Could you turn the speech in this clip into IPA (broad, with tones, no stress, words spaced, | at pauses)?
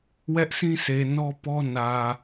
wɛ˦ʔsʰĩ˦sʰe˨ nɔ˦pɔ˦nä˨